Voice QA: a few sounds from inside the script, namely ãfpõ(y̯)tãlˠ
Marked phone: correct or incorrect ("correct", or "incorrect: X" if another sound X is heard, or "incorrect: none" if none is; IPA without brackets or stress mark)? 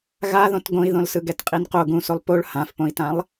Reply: incorrect: i̯